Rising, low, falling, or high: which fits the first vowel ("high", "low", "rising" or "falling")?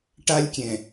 high